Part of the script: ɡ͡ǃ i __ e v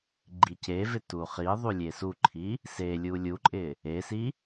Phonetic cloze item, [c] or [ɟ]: c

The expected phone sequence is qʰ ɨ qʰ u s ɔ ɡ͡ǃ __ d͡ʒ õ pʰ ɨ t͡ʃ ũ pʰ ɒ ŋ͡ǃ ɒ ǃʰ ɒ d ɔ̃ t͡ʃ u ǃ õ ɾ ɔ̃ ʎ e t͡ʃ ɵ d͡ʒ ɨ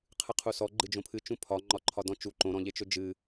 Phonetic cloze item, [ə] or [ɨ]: ɨ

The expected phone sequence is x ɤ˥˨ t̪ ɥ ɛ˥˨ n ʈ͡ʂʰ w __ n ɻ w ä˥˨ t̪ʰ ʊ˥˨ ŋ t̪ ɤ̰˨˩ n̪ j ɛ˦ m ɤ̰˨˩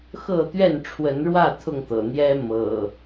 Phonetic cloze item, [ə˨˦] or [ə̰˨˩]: ə˨˦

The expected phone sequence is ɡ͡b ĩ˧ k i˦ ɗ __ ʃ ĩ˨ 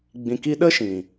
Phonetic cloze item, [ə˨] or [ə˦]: ə˦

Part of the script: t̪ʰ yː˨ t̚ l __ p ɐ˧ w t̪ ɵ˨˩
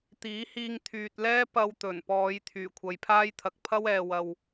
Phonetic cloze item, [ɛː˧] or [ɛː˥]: ɛː˥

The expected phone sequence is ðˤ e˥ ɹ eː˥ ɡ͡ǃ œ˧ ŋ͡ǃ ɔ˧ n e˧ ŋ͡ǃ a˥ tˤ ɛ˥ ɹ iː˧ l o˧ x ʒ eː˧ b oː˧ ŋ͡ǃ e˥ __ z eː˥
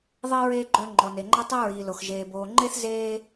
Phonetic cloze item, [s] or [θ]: θ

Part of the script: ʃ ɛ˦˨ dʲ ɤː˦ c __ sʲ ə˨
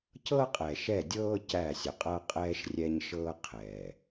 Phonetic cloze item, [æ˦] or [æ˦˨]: æ˦˨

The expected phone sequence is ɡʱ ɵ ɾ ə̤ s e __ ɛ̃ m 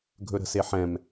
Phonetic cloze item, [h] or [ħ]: ħ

